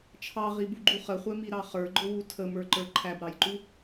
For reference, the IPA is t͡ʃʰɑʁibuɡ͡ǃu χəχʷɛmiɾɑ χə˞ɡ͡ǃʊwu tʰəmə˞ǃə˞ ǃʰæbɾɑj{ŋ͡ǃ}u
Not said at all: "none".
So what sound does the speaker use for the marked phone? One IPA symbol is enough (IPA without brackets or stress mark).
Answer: ǃ